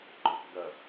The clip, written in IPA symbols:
ɡ͡ǃ ɔ k ɡ ɐ

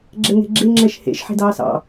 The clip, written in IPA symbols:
ɡ͡ǁ ɛ ŋ e̤ ɡ͡ǁ e ŋ͡ǁ ɛ ʃ h ḛ ʃ ħ e̤ d ɑː s ɑ̰

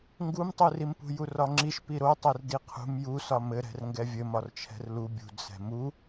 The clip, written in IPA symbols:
ŋ ɡ u m tˤ u r i m p ṳ j u r ɒ ŋ͡ǁ i ʃ p i ɾ o tˤ ɛ r d i qʰ ṳ m j u s ɒ m ɘ ɾ ɛ̤ r ŋ ɡ ɛ vʲ ɘ m ɒ r t͡ʃʰ ɛ̤ r l u bʲ ṳ d s ɛ̤ m u

